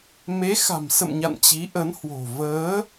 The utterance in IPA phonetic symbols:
m e˨˦ x a̤˨˩ m s ə̰˧˨ m ɲ a̰˧˨ n t͡ɕ i˨˦ ʔ ə˨˦ n h w o̤˨˩ v əː˨˦

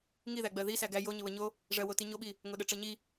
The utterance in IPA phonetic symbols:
ŋ i ð æ ɡ͡b ɜ ð i s æ ɡ æ j o ɲ ə β ə ɲ o | ʐ ɜ w o t i ɲ o ɓ i | ŋ o ɗ ə ʈ͡ʂ ɜ ɲ i

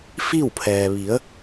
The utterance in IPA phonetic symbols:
f i˥˨ w pʰ ɛː˩ ʋ i˩˧ ə̯

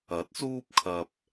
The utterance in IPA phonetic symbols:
ɐ˨˥ t̚ s uː˥ p̚ kʰ ɐ˧ p̚

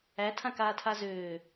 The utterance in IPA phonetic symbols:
æ tʰ ã k aː tʰ a z øː

